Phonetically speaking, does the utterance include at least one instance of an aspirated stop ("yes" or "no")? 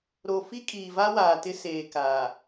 no